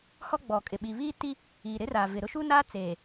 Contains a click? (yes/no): no